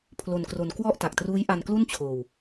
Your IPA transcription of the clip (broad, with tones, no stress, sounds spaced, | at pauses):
pʰ l o˧ n k r o˧ n k w ɔ˥˩ ʔ t a˨˩ k̚ t r uː˦˥ j ʔ a˧ n k l u˥˩ n t͡ɕʰ oː˧ w